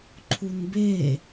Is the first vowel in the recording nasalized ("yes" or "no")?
no